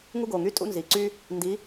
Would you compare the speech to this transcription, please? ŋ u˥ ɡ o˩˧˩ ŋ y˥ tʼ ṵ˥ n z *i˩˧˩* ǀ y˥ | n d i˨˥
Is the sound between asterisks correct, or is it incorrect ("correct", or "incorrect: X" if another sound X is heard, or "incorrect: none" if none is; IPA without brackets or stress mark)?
correct